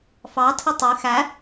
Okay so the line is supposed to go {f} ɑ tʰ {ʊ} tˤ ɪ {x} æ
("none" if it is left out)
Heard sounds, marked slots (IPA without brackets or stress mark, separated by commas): f, ʊ, x